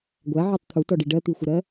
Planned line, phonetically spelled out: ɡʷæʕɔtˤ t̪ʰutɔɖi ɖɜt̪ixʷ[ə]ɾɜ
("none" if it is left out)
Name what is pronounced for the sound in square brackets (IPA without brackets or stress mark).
ə